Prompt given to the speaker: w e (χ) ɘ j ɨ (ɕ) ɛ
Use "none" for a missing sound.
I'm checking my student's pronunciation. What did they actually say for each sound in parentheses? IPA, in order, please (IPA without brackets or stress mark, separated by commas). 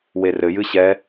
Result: r, ɕ